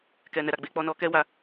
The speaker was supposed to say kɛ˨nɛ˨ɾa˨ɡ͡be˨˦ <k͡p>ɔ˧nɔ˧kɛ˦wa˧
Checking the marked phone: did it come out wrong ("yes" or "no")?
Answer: no